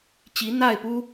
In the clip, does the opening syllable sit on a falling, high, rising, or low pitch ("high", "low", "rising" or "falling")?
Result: rising